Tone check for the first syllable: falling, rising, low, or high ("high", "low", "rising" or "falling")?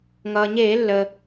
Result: low